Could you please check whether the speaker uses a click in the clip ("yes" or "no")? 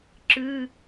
yes